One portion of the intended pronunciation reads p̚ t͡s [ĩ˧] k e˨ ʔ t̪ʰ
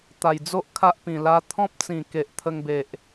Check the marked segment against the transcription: incorrect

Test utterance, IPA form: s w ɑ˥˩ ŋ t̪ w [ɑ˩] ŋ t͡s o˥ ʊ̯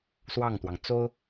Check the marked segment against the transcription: correct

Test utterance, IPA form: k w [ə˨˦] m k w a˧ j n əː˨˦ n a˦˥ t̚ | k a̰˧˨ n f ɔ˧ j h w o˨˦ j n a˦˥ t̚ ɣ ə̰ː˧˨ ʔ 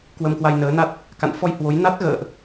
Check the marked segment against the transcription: incorrect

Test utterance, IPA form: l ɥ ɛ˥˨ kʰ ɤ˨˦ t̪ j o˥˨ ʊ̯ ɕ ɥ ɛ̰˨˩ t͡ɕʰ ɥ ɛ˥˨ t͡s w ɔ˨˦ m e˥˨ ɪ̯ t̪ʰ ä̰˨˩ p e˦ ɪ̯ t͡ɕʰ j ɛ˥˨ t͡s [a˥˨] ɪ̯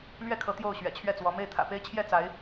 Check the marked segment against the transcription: incorrect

